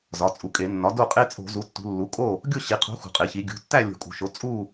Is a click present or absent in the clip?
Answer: absent